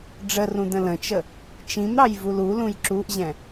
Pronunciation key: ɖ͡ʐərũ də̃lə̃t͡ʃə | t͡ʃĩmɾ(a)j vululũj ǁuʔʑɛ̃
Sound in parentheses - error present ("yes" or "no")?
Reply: yes